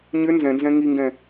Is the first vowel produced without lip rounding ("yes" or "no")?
no